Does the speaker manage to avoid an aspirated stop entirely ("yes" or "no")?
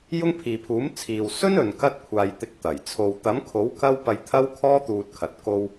no